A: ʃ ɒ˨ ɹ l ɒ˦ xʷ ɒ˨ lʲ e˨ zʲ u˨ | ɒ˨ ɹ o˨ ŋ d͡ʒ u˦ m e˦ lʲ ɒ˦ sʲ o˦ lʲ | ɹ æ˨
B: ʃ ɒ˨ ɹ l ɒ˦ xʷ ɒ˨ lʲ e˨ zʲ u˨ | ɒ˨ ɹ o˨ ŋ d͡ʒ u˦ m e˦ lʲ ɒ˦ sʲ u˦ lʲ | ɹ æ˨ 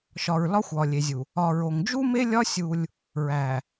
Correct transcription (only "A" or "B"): B